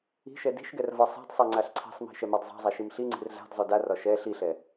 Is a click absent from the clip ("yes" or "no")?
no